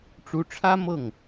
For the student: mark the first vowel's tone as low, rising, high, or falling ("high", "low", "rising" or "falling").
rising